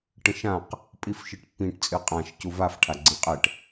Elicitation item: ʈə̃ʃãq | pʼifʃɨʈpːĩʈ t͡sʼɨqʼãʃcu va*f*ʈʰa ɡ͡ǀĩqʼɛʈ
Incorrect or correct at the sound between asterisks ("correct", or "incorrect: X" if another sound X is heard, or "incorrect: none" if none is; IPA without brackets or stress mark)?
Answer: correct